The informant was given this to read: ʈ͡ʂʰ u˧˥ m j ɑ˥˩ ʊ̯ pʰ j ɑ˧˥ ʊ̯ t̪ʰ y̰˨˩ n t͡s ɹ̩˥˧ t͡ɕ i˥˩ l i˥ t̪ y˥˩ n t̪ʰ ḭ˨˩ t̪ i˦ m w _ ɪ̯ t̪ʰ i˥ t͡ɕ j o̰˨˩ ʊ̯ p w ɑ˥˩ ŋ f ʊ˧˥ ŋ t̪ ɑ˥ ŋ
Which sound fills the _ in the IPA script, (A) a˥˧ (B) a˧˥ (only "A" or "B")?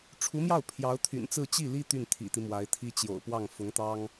B